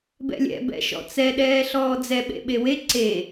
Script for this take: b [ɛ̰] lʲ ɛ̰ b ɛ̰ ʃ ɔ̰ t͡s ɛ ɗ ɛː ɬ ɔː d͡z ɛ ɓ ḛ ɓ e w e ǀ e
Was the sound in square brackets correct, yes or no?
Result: yes